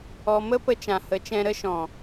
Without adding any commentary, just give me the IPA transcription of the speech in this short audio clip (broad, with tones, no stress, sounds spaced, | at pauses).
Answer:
ɔ˧ m ə˦ p ə˧ t͡ʃ ã˨ h ə˨˦ t͡ʃ ɛ̃˧ ɾ ə˦ ʃ ɔ̃˨